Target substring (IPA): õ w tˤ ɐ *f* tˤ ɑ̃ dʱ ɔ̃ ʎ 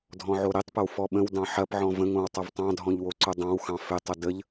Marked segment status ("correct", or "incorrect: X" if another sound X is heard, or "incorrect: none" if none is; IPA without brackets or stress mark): incorrect: v